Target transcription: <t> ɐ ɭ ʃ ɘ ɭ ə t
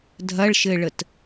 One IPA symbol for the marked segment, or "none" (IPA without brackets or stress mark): dʱ